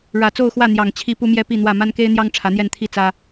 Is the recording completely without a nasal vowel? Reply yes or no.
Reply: yes